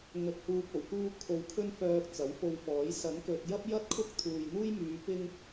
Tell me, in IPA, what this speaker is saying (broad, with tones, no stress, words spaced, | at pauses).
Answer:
ŋɵ˧t̚huː˧p̚ o˨˩wkuː˥kʰo˧w kʰɵ˥nfœː˧k̚ t͡sɐ˨˥wfo˧wfɔː˨˥j sɐ˨˥nkɵ˨t̚ jɐ˥p̚jɐ˥t̚ kʰʊ˥k̚ t̪ʰuː˨jn̪uː˥jmyː˨˧ pɪ˥ŋ